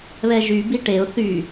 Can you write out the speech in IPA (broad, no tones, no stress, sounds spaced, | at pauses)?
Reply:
β ɛ ʒ y b i ʈ e ʊ̯ θ y